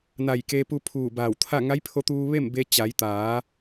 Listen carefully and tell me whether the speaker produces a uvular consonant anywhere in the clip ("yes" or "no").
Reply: no